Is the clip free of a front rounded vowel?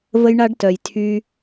no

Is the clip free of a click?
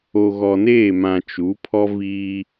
yes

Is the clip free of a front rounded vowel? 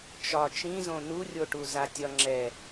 yes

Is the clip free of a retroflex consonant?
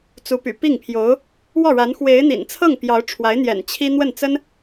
no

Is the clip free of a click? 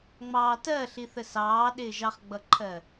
no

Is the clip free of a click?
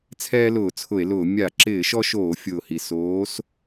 no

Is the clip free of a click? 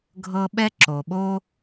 no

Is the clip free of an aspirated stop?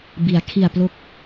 no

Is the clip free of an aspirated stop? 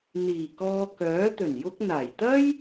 yes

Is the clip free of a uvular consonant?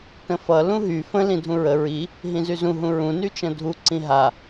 yes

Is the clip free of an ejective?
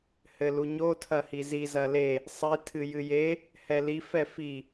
yes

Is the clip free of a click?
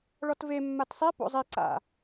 no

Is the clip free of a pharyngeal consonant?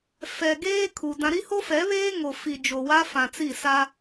yes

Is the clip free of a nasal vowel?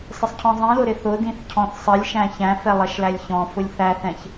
no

